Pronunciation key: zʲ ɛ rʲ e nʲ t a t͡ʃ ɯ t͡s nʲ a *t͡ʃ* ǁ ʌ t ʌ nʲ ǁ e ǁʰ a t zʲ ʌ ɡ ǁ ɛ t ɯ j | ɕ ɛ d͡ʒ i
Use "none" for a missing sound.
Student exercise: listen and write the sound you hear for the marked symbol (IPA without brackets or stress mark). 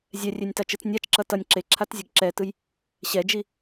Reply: t͡ʃ